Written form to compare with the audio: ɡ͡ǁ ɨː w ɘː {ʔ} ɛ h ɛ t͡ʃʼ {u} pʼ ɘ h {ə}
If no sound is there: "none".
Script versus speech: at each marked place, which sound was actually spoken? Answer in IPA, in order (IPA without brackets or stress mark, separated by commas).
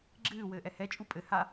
ʔ, u, a